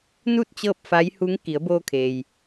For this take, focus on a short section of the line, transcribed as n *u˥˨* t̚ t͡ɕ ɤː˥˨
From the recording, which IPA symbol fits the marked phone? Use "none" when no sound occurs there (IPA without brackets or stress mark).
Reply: u˥˨